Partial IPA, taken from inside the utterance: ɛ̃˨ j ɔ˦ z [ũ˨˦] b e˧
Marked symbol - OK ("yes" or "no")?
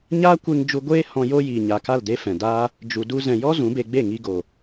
yes